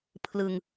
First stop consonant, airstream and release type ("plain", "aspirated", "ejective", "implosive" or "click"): aspirated